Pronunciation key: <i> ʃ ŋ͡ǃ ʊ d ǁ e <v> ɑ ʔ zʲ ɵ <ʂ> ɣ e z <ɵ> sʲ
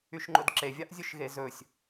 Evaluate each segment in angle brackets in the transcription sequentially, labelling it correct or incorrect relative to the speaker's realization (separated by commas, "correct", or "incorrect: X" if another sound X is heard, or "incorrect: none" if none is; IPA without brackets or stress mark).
incorrect: y, incorrect: vʲ, incorrect: ʃ, correct